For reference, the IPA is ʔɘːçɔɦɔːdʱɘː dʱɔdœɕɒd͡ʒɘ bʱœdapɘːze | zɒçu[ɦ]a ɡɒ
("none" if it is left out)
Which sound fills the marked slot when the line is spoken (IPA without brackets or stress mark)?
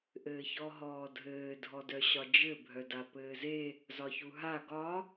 ɦ